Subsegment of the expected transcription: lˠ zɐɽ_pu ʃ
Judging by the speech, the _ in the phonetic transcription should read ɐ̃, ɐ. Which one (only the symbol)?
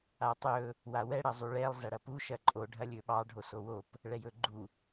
ɐ